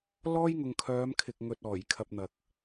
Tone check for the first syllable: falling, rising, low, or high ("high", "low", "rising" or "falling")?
high